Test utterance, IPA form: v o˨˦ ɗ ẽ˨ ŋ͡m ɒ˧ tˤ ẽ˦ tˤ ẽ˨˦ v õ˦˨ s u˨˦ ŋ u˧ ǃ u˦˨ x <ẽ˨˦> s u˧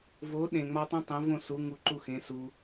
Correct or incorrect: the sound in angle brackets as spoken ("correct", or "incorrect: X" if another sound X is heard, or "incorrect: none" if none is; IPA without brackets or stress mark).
correct